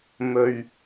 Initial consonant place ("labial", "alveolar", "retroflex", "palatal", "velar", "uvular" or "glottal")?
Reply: labial